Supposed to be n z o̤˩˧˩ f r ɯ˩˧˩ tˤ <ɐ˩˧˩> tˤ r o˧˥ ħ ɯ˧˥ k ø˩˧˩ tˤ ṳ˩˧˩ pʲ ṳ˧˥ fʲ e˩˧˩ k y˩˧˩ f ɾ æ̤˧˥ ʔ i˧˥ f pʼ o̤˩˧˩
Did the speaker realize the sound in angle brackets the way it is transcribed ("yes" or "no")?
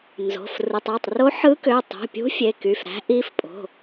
no